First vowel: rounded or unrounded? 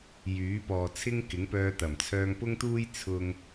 rounded